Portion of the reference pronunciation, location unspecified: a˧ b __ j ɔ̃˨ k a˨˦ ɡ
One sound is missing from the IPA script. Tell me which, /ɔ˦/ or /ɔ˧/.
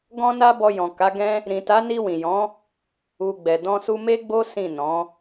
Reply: ɔ˧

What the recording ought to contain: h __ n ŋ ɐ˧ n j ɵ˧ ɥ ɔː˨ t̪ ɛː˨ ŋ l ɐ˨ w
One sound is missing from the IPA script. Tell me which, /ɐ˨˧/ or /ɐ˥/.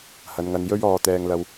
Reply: ɐ˨˧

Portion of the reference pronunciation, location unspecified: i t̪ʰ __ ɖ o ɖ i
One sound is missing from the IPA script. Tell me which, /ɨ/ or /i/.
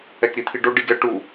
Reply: i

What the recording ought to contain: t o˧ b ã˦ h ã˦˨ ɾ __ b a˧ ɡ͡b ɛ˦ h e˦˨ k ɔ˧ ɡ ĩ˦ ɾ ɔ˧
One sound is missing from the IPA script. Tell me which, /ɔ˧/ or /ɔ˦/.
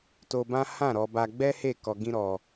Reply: ɔ˧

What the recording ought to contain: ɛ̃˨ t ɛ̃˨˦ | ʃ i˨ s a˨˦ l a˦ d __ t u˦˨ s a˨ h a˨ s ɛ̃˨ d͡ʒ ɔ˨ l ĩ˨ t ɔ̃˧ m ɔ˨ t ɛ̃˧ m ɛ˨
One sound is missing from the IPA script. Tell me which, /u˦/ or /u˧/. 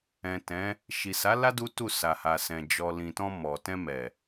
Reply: u˦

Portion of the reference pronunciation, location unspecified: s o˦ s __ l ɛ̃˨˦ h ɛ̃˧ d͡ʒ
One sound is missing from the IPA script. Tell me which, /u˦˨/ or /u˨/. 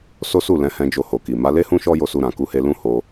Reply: u˦˨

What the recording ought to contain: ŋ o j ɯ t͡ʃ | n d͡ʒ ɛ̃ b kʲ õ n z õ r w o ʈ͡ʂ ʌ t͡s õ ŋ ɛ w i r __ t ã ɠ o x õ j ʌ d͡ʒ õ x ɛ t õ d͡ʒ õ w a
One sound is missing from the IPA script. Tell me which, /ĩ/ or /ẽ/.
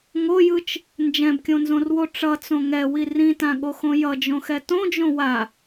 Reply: ĩ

